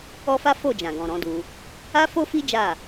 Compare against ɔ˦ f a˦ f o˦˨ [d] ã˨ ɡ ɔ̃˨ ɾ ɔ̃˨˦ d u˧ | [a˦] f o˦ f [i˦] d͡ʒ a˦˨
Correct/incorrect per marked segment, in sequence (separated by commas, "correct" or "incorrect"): incorrect, correct, correct